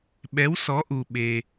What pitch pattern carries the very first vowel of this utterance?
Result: rising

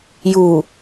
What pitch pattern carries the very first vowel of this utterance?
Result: low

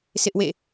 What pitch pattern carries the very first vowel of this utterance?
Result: high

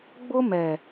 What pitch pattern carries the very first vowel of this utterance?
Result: high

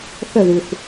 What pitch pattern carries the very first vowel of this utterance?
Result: falling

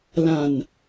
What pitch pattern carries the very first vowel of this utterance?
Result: low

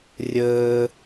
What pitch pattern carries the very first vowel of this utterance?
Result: high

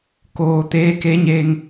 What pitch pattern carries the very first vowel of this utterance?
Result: low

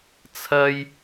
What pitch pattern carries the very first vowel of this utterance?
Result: high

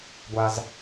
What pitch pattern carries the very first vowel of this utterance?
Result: high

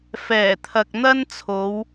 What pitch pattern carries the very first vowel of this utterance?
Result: low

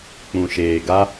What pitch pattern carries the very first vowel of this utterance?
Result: low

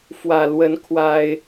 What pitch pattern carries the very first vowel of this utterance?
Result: low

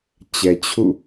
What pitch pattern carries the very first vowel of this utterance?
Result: low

